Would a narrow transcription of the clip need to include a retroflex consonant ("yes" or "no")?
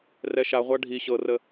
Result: yes